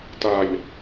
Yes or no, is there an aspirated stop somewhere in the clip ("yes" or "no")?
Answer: no